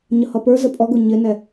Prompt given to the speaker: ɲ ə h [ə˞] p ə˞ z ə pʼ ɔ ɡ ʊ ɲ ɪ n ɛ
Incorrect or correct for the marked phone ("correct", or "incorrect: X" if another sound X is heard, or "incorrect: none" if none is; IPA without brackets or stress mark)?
incorrect: ʌ